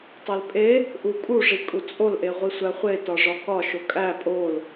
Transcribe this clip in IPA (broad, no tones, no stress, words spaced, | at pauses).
tˤelpʼe | ʔukʼuʐi kʼut͡sʼolʔeʁʷi sʷæχʷetɒ ʐɒkɒʃo kʼæ pʼol